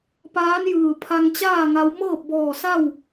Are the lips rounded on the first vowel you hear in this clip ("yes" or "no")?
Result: no